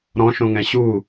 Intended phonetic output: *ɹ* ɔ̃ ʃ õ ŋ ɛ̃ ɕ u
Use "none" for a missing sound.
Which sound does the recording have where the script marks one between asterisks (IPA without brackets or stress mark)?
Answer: ɾ